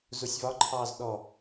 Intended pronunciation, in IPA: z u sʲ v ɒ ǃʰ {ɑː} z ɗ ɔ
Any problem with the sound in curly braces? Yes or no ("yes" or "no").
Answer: no